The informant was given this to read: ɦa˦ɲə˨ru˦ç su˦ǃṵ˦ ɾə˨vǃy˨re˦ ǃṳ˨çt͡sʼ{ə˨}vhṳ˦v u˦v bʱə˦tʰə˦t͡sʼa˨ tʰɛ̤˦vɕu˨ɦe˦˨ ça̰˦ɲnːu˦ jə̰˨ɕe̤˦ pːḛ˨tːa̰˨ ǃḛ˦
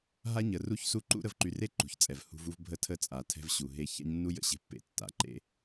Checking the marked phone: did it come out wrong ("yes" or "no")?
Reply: yes